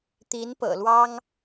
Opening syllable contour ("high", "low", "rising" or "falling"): rising